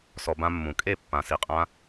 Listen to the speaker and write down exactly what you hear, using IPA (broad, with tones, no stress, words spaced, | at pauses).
sɔ˧ bã˧mːũ˨kʼe˦˨ pːã˧ si˧qʼã˦